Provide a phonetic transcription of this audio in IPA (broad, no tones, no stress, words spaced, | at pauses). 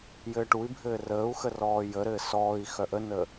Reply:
jɘːʈui̯bʱɘː rəːu̯xə rɔːjəɾɘː sɔːi̯ xœʔənə